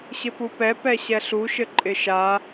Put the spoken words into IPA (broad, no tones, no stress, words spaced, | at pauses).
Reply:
ɕɪpupɛ pɛɕɛɬu ʃɘǃʼɪʃa